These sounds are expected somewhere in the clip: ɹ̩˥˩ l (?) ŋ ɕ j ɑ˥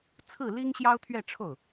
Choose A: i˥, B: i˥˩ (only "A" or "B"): A